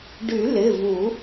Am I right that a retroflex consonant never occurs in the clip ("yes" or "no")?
no